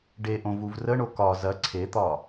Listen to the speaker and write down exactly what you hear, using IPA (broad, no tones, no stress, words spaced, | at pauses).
ɖeʔõ vuvrəɳo kɒ zɐ ǀʰet̪ɒ